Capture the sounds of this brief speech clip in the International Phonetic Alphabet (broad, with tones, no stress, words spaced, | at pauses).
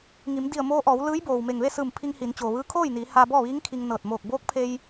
ŋi˩˧mdi˧˩ə̯moː˧ʔɔː˩˧w lɯː˧˥jboː˩wme˧˩ŋ ʋe˥˨sɯː˧˩m pʰi˧ŋhi˩˧n t͡ɕoː˩ʋɯː˧kʰoː˥˨jniː˩˧ haː˧bɔː˥˨ʋiː˧˥ŋkʰi˧ŋ nɤː˧˩t̚ moː˧˩k̚boː˧˥k̚pʰe˧j